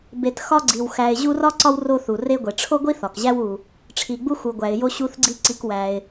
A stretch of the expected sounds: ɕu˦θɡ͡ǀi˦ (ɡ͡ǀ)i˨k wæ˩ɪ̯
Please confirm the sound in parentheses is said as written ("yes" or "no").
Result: no